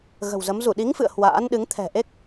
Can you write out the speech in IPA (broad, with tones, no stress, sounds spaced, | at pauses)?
ɣ ə̤˨˩ w z ə˨˦ m z u˧˩ ɗ i˨˦ ŋ f ɨ̰˧˨ ə̯ h w a̰ː˧˥ n ɗ ɨ˨˦ ŋ t̪ʰ ɛ̤˨˩ ʔ e˦˥ k̚